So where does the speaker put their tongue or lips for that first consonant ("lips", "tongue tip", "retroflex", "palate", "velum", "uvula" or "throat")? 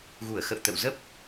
velum